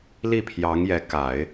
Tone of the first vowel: falling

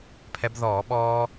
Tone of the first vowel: rising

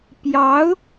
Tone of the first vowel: rising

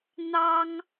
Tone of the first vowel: high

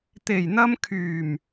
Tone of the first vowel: low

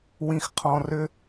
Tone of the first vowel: low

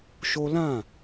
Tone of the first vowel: high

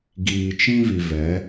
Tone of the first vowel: low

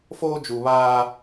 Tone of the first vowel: high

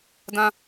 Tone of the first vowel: high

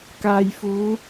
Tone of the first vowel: low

